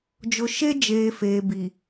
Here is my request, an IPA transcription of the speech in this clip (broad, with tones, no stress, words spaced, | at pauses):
d͡ʒʊ˨ʃe˦d͡ʒeː˨ feː˨bi˨